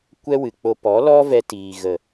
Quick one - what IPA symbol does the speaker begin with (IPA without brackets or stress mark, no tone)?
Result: kʷ